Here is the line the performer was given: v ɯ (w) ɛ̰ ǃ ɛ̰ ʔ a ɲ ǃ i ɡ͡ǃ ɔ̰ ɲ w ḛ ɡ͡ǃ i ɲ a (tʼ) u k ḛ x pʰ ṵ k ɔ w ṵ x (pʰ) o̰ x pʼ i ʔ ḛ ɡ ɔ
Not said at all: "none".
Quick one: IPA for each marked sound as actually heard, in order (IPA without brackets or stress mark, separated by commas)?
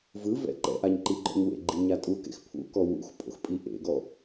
v, tʼ, pʼ